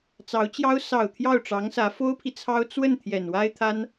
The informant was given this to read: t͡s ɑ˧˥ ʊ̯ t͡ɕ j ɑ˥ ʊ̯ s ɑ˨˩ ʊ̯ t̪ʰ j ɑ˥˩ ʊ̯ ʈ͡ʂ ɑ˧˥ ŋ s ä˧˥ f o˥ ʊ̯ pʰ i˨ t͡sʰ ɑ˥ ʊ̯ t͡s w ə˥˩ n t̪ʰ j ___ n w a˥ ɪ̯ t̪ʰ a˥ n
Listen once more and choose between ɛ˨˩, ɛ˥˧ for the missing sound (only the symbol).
ɛ˨˩